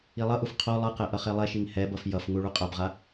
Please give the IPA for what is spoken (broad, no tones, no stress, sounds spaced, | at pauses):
i lˠ ʌ ʔ u f qʰ o lˠ ɯ q ɛ ʔ ʌ χ e lˠ ɛ ʃ i ŋ h ɛ b ʌ f j ʌ f ŋ u ɭ u qʼ a b ʁ a